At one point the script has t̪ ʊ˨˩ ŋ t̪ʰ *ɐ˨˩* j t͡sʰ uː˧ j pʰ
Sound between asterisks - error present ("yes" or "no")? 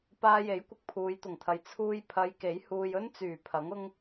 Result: yes